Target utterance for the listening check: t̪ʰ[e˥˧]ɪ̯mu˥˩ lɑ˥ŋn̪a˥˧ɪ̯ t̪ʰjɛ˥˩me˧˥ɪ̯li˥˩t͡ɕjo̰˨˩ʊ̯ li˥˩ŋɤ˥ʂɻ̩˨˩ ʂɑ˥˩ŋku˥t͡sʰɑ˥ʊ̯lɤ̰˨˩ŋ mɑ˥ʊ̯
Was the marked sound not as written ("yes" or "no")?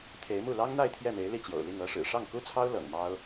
yes